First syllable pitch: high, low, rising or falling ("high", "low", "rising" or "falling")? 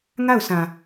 falling